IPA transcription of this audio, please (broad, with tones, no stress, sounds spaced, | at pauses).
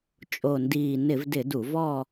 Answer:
t͡ʃʼ o˨˩ n d iː˨˩ n ɪ˧˩˧ v d ɪ˧˩˧ d u˧˩˧ v ɔ˥˧